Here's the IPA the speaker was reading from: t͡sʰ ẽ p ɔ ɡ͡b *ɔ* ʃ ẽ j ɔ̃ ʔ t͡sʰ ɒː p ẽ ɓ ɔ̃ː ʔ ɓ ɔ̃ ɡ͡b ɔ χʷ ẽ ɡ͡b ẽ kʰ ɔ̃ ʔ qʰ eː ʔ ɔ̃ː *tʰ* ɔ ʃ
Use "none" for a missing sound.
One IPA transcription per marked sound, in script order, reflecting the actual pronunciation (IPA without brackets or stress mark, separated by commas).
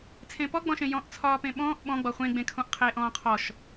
ɔ̃, qʰ